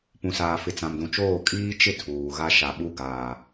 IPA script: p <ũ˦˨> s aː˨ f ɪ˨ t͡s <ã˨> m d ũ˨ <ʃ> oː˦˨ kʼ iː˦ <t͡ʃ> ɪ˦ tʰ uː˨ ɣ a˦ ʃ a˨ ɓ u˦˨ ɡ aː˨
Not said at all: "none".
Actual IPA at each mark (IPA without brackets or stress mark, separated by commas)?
ũ˨, ã˨, t͡ʃ, t͡ʃ